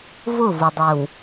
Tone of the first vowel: falling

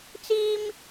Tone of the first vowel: high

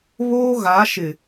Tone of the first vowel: high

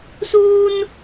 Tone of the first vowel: high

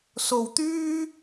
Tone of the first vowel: low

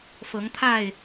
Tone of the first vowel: rising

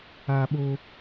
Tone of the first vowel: high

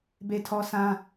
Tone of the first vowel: high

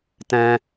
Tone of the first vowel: high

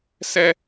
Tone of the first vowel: high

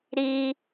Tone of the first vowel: high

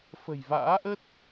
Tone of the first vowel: low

